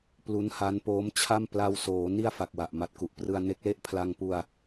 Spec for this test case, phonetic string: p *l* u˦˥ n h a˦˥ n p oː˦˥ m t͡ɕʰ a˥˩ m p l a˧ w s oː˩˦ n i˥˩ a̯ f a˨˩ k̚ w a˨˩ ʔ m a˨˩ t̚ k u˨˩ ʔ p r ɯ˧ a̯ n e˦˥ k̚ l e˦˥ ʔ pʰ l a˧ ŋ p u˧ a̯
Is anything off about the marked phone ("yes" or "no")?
no